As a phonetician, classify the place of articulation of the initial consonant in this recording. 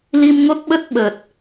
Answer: alveolar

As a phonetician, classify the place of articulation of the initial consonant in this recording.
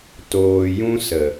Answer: alveolar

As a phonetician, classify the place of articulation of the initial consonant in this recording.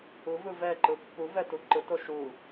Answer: labial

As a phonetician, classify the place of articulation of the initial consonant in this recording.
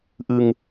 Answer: glottal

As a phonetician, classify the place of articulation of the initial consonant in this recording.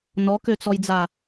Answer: alveolar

